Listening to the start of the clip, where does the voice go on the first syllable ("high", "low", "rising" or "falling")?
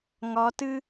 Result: rising